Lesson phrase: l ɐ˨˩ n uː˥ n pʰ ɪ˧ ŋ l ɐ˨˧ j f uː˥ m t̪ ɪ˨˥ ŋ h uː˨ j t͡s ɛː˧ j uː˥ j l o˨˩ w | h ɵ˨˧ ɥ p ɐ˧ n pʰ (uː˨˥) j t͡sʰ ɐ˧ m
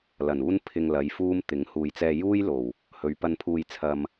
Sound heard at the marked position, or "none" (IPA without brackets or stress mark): uː˧